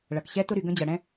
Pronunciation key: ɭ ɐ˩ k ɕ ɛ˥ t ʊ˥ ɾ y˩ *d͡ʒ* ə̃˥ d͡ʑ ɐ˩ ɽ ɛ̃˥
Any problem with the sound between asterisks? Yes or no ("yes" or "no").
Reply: yes